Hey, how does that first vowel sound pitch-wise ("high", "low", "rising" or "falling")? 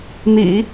low